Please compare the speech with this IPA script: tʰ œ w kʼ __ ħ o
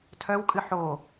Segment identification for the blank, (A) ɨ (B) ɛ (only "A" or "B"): A